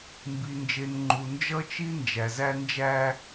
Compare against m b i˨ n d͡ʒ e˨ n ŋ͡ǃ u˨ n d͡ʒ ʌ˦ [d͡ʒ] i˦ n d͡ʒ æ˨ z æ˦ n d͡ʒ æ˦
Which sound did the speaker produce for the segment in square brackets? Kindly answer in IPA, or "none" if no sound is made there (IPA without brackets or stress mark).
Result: t͡ʃ